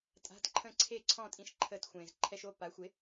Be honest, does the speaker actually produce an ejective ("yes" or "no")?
yes